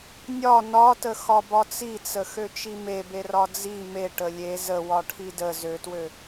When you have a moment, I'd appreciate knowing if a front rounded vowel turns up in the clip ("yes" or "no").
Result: yes